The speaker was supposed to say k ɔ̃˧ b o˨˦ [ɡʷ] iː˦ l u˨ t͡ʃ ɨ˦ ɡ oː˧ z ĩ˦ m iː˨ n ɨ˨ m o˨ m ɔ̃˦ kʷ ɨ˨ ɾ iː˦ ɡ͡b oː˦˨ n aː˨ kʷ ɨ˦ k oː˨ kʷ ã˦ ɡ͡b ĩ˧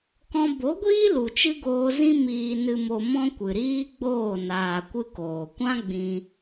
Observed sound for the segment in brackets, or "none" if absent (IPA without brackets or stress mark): ɡʷ